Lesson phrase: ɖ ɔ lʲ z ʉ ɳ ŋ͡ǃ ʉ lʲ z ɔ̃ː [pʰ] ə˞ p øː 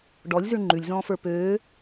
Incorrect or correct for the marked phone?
incorrect: f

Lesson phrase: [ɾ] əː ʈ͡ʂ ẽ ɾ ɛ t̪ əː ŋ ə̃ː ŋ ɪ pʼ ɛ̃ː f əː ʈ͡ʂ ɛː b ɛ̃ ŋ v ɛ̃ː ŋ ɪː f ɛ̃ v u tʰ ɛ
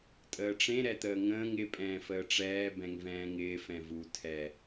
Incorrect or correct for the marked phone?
incorrect: tʼ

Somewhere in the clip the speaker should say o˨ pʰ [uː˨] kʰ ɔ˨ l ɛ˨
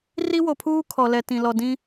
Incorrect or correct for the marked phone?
incorrect: uː˦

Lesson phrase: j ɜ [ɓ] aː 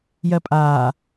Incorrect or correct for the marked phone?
incorrect: pʼ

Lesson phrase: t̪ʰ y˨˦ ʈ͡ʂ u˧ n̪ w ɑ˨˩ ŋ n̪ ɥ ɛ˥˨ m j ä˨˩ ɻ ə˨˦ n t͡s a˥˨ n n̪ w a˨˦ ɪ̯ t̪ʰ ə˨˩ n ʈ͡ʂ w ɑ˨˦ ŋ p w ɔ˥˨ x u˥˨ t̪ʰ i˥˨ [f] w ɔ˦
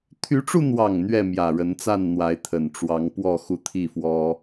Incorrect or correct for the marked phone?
correct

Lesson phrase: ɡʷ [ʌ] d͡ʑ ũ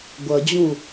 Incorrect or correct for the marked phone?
correct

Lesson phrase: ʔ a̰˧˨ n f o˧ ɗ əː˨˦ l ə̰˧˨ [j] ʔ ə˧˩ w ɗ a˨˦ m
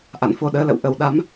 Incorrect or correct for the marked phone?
incorrect: w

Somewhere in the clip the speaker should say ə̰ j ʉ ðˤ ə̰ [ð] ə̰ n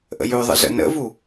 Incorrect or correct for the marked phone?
incorrect: z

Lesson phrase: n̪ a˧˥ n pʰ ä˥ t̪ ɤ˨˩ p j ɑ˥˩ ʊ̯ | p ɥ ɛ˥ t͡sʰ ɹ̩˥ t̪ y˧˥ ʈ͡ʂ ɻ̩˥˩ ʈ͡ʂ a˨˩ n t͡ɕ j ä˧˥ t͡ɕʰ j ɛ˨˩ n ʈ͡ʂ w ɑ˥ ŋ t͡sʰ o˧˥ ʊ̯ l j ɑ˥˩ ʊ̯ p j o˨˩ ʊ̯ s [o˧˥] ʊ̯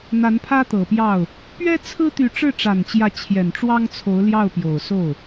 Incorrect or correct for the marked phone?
incorrect: o˥˩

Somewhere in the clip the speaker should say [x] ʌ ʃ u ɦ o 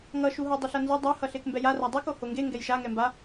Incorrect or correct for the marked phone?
incorrect: ŋ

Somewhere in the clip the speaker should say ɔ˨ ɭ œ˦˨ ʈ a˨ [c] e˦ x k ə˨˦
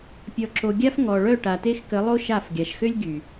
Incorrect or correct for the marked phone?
incorrect: t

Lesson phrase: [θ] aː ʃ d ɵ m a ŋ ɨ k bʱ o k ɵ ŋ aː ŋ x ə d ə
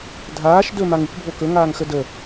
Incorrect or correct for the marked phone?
incorrect: dʱ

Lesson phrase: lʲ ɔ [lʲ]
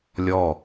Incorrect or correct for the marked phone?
incorrect: none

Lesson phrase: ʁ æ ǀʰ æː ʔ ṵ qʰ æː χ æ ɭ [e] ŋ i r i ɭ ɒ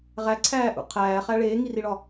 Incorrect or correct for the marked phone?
incorrect: eː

